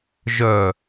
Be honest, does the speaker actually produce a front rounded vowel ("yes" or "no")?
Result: yes